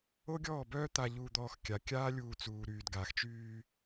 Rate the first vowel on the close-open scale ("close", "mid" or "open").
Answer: mid